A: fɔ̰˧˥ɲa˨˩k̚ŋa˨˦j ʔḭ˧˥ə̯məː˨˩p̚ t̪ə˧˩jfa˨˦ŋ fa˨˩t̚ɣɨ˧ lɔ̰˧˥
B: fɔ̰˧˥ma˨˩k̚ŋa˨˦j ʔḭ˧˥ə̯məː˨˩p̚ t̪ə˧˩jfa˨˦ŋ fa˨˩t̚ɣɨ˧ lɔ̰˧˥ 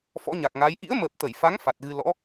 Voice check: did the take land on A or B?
A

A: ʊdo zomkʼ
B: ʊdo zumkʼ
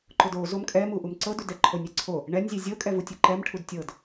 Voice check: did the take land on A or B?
A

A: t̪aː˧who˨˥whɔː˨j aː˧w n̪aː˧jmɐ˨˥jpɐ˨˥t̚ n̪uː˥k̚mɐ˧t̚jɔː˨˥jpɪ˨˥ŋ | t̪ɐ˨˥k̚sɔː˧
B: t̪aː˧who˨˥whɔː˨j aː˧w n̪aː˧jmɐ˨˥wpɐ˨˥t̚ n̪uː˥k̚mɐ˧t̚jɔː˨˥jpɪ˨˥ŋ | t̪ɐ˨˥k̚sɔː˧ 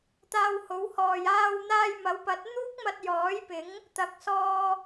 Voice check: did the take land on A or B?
B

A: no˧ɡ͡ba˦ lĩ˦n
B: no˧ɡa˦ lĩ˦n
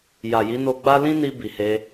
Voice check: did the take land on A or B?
A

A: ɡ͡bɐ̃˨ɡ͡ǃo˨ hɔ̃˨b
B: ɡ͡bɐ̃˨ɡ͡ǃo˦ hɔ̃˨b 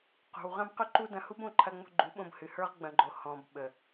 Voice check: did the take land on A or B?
A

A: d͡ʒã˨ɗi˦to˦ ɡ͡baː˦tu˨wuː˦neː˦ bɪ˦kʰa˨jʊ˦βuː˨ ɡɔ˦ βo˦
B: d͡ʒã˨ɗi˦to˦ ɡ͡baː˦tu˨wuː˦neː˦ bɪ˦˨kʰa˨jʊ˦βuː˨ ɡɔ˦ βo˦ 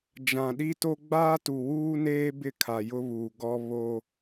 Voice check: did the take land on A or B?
B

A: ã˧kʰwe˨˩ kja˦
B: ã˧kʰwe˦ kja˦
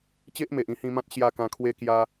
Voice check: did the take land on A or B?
B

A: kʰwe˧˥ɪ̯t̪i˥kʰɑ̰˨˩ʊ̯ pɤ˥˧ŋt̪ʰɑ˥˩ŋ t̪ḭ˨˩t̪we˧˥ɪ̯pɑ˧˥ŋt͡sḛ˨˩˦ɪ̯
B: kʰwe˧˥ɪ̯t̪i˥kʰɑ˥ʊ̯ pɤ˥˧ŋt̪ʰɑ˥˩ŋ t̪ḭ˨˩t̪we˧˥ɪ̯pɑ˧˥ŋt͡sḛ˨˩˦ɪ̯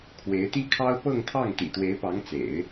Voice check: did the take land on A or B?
B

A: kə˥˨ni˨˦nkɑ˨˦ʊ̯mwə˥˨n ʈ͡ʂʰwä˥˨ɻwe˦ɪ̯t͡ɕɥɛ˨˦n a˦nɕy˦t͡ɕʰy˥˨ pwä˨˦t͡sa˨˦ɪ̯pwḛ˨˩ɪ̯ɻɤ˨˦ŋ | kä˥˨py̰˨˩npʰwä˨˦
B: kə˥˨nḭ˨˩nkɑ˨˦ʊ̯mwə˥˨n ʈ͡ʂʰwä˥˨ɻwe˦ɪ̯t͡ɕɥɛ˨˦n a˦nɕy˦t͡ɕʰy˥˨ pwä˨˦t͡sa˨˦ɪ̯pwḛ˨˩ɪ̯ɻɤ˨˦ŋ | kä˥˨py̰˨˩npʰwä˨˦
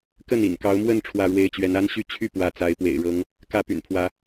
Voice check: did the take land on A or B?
B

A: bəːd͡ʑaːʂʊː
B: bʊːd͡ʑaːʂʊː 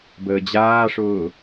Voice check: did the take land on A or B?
A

